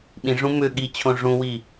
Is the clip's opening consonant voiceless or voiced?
voiced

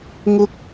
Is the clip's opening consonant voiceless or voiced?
voiced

